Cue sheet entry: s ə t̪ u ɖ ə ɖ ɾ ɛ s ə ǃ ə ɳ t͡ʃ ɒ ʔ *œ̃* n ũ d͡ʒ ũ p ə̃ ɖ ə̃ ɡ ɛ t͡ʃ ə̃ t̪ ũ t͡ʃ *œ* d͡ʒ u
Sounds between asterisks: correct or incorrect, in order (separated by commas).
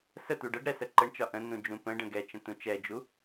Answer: incorrect, incorrect